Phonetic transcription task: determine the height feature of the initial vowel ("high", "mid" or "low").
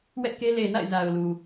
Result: mid